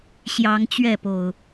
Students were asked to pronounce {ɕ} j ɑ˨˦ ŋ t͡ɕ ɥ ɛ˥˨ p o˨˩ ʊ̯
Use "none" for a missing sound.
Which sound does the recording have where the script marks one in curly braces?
ɕ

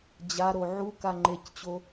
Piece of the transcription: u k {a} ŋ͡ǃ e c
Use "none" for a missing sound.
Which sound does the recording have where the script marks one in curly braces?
a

